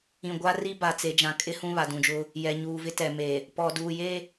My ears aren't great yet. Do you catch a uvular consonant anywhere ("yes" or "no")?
no